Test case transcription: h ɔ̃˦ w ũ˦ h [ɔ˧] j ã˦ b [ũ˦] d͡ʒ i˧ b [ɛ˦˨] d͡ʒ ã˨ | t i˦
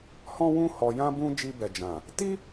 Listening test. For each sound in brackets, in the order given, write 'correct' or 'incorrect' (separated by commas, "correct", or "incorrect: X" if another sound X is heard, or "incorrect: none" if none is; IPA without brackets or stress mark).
correct, correct, incorrect: ɛ˨